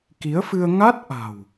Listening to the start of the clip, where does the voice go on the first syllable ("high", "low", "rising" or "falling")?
rising